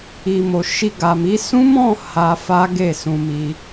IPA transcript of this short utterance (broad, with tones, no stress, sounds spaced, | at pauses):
i˨ m o˨ ʃ i˧ ɡ a˨ m i˨˦ s ũ˦ m ɔ̃˦˨ h a˧ f a˦ ɡ e˦˨ s ũ˧ m i˧